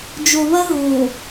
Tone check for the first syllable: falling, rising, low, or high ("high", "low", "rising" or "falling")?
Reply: low